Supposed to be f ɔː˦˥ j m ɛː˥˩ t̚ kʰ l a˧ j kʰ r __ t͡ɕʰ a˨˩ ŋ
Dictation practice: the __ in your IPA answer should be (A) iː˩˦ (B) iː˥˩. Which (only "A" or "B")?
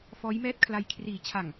A